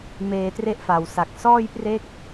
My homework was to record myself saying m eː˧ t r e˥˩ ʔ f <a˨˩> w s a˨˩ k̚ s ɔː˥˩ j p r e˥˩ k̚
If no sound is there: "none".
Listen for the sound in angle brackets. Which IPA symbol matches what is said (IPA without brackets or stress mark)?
a˨˩